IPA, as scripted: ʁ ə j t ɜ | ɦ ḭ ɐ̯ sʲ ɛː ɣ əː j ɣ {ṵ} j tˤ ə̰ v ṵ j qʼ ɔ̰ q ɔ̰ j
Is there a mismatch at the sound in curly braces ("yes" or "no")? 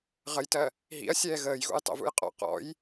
no